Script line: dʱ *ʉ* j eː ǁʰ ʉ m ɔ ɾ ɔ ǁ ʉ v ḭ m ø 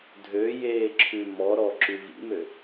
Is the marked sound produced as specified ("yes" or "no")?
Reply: no